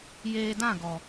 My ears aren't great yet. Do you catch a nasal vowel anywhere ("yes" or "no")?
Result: yes